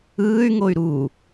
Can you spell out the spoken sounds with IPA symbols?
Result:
ɯː y̯ ŋ o y̯ ɾ u

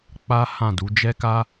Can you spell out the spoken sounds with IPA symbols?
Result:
k͡p a˦ h ã˦˨ d u˨˦ d͡ʒ ɛ˦ k a˦

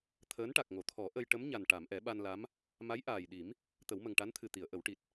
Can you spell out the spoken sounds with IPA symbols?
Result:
t̪ʰ əː˧˥ n ʈ a˨˩ k̚ ŋ o˨˩˨ t̪ʰ ɔ˨˩˦ ʔ ə˧ j ʈ ə˧˥ m ɲ a˨˩ n ʈ a˨˩˨ m ʔ ɛ˨˩˦ ɓ a˧ n l a˧˥ m | m a˧˥ j ʔ aː˨˩ j ɗ i˨˩˦ m | t̪ ə˨˩˦ w m ə˨˩ ŋ ʈ a˧˥ n t̪ʰ ɨ˨˩ t̪ i˨˩˨ ə̯ ʔ ə˨˩˦ w ʈ i˨˩ t̚

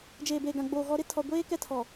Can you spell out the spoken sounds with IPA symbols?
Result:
d͡ʒ eː˨ b eː˨ ɡ ã˨ ɡ͡b oː˨ ɣ ɔ˨ ɾ ɪ˦ tʰ ɔ˨ ɡʷ eː˦ k ɛ˦ tʰ ɔ˨

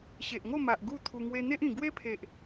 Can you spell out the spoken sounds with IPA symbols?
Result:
ɕ e˨ ʔ ŋ o˥˧ m a˨ ʔ ɡ u˥˧ t̪ʰ u˧ ŋ w e˧ n̪ e˦ ʔ ĩ˨˩ ɡ w e˦ pʰ e˨ ʔ

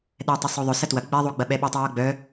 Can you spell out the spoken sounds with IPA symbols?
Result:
ɗ ɛ tˤ ɘ sˤ o ðˤ œ s ɐ t w ɐ ɡ͡b ɛ ðˤ o ɡ͡b ɐ ɓ ɛ ɓ œ tˤ o j o ɡ͡b œ

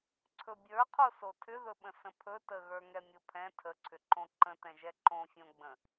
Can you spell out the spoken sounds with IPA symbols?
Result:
ǀʰ ɵ bʲ ə˞ qʰ o s o tʰ ʏ ð ɵ ɓ ə̃ s ə̃ pʰ ɵ t ə ɣ ə˞ ŋ ɛ mʲ o pʰ ɛ̃ tʰ ə ǀʰ ʏ ǃ õ ǃ ə̃ t ɛ̃ ʒ ɛ ǃ õ fʲ õ ɡ͡b ə̃

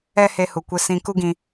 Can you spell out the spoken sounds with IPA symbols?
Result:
ɛ˦ h e˧ h u˨ kʷ e˧ s ĩ˧ k u˦ ɡ ĩ˧

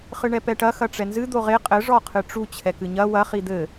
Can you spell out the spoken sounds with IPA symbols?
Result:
χ ɨ ɳ ɛ p ɛ ʈ ɐ x ɐ ʈ͡ʂ ɛ n z ɨ d̪ o ʁ e qʼ ɘ ʐ ɔ qʰ ɨ ʈ͡ʂ u t͡ɕʰ ɛ k ɨ ɲ ɐ w ɐ χ i d̪ ɘ

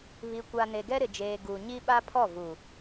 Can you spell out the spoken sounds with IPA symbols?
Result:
β i˨ kʷ a˨ n e˨ ɡ ɛ˦ ɾ ɪ˨ d͡ʒ eː˨ ɡ u˨ ɲ i˦ ɓ a˦ pʰ ɔ˦˨ v u˨

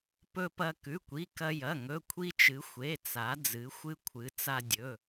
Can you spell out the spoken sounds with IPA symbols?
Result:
p ɵ˧ p ɐ˧ k ʉ˩˧˩ kʷ i˩˧˩ k ɐ˧ j ɐ˩˧˩ ŋ ɵ˩˧˩ kʷʰ i˧ t͡ʃ ɨ˩˧ xʷ e˩˧˩ t͡s a˩˧ d͡z ɨ˩˧ xʷ ɨ˧ kʷʰ ɨ˩˧ t͡s a˧ dʲ ɵ˩˧˩

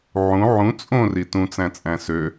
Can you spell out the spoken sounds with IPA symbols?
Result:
ʕ ũ ʕ ũ t͡sʼ õ r i t ũ t͡s æ̃ t͡sʼ æ̃ s ø

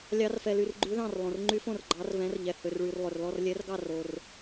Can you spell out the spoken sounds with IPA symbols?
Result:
lʲ ɑ˦˥ r f ɛ˧ l y˧ r ɡ͡ǃ ʉ˦˥ ð ɑ̃˥˧ r lˠ õ˧ r ŋ͡ǃ y˦˥ f õ˥˧ r ɡ͡ǃ ɑ˦˥ r v ɛ̃˦˥ r ʎ ɛ˧ h ø˧ r ɭ y˧ r lˠ ø˧ r l ɔ˥˧ r lʲ ɛ˦˥ r ɡ ɑ˥˧ r o˧ r

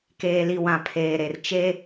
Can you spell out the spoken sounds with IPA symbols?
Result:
k eː˨ l i˨ w ã˨ pʰ eː˨ ɾ e˨ r t͡ʃ e˦

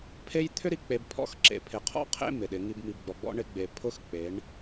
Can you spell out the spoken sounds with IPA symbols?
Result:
pʰ e˦ j t̪ʰ ʏ˦ ɾ i˨ k͡p e˨ b pʰ ɔ̰˦ x ǁ ḛ˨ pʰ ɪ˨ qʰ ɔ̰˦ qʰ ḛ˦ m ɪ˨ ɗ ɪ˨˦ ŋ i˦ b m i˨ b ɡ͡b ɔ˨ ɡ͡b ɔ̰˦ ɳ ɪ˦ ɡ͡b e˨ pʰ ʊ˦ x k͡p e˨˦ ɳ

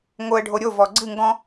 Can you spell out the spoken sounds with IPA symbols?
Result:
ŋ o ə̯ ɖʱ o ɾʲ o v ɔ ɡ͡ǀ ɨ ŋ ɡ ɔ̃

